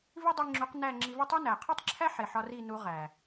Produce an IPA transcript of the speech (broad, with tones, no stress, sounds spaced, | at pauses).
v i˦ dˤ i˧ ŋ͡ǁ u˨˦ q n æ˦˨ ŋ͡ǁ i˧ v i˦˨ tˤ i˦ n æ˨ qʰ u˦ tˤ ǁʰ æ˦ ħ e˨ ħ ɒ˧ r i˦˨ n u˨˦ ʁ æ˨